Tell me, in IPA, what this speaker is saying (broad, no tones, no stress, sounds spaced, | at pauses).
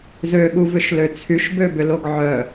z ø ɠ u v ʏ ʃ l ø t͡sʰ y ʃ b ø b ʏ l o ɡ ʕ œ